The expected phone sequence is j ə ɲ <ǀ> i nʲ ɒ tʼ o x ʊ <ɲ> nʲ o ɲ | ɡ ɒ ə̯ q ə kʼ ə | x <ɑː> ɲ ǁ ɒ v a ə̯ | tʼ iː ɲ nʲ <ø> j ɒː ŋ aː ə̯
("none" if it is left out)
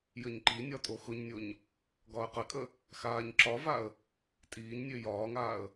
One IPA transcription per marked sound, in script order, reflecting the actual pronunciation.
ǃ, ɲ, aː, ø

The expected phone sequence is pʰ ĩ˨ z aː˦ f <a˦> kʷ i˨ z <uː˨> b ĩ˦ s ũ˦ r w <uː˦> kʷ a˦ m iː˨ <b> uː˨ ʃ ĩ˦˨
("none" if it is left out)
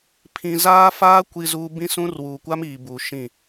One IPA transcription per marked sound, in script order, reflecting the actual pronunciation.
aː˦, u˨, uː˨, b

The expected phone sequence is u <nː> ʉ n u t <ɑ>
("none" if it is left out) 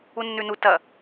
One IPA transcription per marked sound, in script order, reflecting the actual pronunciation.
nː, ɐ

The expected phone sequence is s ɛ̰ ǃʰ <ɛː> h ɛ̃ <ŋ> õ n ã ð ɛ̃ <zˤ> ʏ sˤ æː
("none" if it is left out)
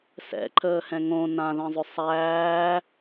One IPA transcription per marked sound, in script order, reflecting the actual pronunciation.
əː, ŋ, zˤ

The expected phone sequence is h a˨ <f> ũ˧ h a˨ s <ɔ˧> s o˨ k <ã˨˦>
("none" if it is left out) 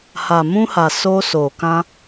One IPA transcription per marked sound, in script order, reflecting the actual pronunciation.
m, o˧, ã˧

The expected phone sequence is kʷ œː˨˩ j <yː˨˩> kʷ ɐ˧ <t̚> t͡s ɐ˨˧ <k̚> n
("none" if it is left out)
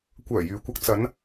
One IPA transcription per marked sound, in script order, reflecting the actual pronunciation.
yː˨˧, k̚, none

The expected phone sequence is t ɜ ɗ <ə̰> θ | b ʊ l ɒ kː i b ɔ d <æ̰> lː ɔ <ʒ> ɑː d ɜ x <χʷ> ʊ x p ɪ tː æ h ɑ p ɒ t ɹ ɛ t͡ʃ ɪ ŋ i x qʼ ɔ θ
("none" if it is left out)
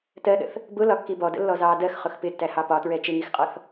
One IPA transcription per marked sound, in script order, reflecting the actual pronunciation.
ə̰, ə̰, z, χ

